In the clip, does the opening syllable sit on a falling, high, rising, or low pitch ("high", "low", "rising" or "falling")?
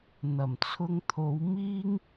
low